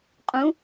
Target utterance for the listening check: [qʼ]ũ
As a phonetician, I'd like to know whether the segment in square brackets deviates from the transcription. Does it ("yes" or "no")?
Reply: no